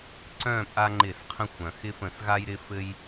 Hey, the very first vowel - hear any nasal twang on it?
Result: yes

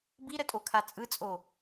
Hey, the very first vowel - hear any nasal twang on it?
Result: no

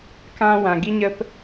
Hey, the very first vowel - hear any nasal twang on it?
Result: yes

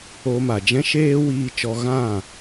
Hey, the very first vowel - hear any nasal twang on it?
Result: no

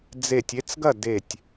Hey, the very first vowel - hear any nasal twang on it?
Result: no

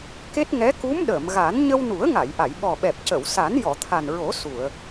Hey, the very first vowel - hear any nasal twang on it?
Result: no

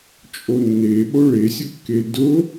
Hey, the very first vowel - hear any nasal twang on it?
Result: no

